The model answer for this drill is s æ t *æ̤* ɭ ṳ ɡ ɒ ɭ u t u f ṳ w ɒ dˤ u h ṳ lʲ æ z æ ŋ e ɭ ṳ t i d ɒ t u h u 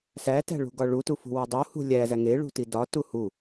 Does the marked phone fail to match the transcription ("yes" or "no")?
no